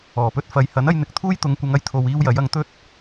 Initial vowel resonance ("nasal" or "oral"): oral